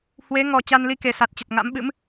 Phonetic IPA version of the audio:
h w e˨˦ ŋ ɔ˨˩ t͡ɕ a˧ n l i˧ k e˨˩ s a˨˩ t̚ t͡ɕ ə˨˩ t̚ ŋ a̰˧˥ m ɓ ɨ̰˧˥ m

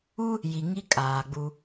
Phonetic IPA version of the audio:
u˦ | j i˨ ŋ i˦ kʼ aː˨ ɡ͡b u˦

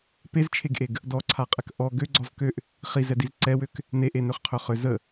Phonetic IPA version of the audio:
p e z t͡ʃʰ e ɡ ʔ e ɡ | d ɔ ǀʰ a qʼ ɛ k ʔ ɔ ɡ ø ɡ͡ǀ ɔ z k ø ʔ | χ i z ɛ d i z ǀ ɛ w ø k | n e ʔ e n ø χ qʰ ø χ ø z ə

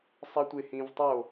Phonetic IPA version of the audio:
sˤ ɜ tʷ e h ĩ v tˤ o

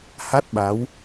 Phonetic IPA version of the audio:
h a˦˥ t̚ ɓ a˨˦ w

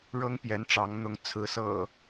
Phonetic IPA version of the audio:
ɻ ɤ˦ ŋ p j ɛ˨˦ n ʈ͡ʂ ɑ˨˦ ŋ n̪ ʊ˨˦ ŋ t͡sʰ ɹ̩˨˦ s ɤ̰˨˩

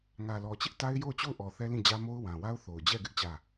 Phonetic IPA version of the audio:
ŋ ä˨ l ɔ˨ t͡ɕ ɪ˦ ʔ t a˦ ɪ̯ j o˦˨ ʊ̯ t͡ɕ o˦˨ ʊ̯ ʔ ɔ˨ θ ɛ˦ l ĩ˦˨ d͡ʑ ä˦ m o˦ ʊ̯ w ã˨ w a˦ ʊ̯ θ o˨ ʊ̯ d͡ʑ ɛ˦˨ ɡ ɪ˦ ʔ t͡ɕ ä˦˨

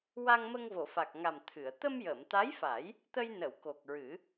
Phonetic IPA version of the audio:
w a˧ ŋ m ə˧ ŋ v o˨˩˨ f a˨˩ k̚ ŋ a˨˩ m t̪ʰ ɨ˨˩˨ ə̯ t̪ ə˧ m j əː˨˩˨ m t̪ a˧˥ j f a˨˩˦ j | t̪ ə˧ j n ə˨˩˨ w k o˨˩ k̚ ɹ ɨ˨˩˦

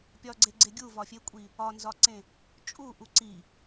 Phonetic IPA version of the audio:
pʲ ɒ ɡ͡ǀ e ɡ͡ǀ e ɡʲ u v ɒ fʲ e kʷʼ i | ɒ n z ɒ ǀ ẽ | t͡ʃʼ u ʔ u ǀ i

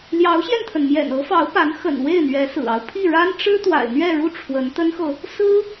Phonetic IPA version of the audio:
l j ɑ˧˥ ʊ̯ ɕ j ɛ˧ n t̪ʰ ə˩ n m j ɛ̰˨˩ n ɤ˧˥ f ɑ˧˥ ʊ̯ p a˧˥ n x ə̰˨˩ n w e˥˩ ɪ̯ n̪ ɥ ɛ˧˥ s ɹ̩˨˩ ɑ˦ ʊ̯ pʰ i˥˩ ɻ a˥ n ʈ͡ʂ ɻ̩˥ t̪ w a̰˨˩ ɪ̯ n̪ ɥ ɛ˥˧ ɻ u˥˩ ʈ͡ʂʰ w ə˧˥ n t̪ ə˥ n x ɤ˨ | s ɹ̩˥

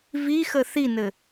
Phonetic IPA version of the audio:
v i x ə θ i n ɘ

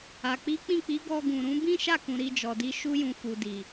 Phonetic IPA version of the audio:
a˨ k͡p i˨˦ k͡p ĩ˦˨ k͡p i˨˦ ɡ ɔ˧ ɡ ũ˨ ɾ ũ˨˦ b ĩ˦ ʃ a˦˨ k ũ˨ ɾ i˧ d͡ʒ ɔ˨ d i˧ ʃ u˦ j ũ˧ f u˨ d i˨

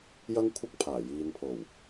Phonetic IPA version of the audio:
j ɐ˥ ŋ kʷʰ ɐ˥ k̚ pʰ aː˨˩ j iː˨ n pʰ o˨˩ w

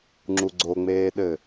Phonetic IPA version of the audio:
ŋ͡ǁ u ɡ͡ǀ o ŋ͡m eː ɗ ɘ

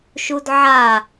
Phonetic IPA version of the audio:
ʃ u d ʕ a

